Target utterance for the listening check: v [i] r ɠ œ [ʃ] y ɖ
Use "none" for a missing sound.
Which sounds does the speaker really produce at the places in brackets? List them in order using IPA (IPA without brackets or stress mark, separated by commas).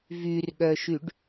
y, ʃ